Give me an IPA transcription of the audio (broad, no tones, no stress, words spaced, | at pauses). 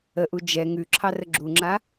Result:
əʔu d͡ʒɛ ŋʉǁʰɑrə ɡ͡ǁuŋ͡ǁa